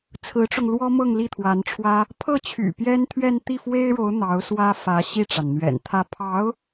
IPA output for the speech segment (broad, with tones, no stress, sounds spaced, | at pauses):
t͡sʰ ɹ̩˧˥ ʈ͡ʂ ʊ˧ ŋ l w ɔ˥ m ɤ˥˧ ŋ l i˥˩ t̪ʰ w a˧˥ n ʈ͡ʂʰ w ä˥ | pʰ ɤ˥˩ t͡ɕʰ y̰˨˩ p j ɛ˥ n t̪ʰ ɥ ɛ˥˧ n t̪ i˥˩ f w e˥ ɪ̯ ɻ o˧˥ ʊ̯ n̪ ɑ˧˥ ʊ̯ s w ä˥ f ä˧˥ ɕ i˥˩ ʈ͡ʂ a˩ n n̪ ɥ ɛ̰˨˩ n t̪ʰ ä˥˩ pʰ ɑ˧˥ ʊ̯